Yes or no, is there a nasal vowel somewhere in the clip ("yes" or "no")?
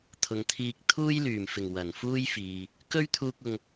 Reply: no